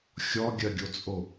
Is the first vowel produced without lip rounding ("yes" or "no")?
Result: no